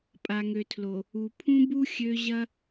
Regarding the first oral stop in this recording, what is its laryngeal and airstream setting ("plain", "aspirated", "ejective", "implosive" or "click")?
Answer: ejective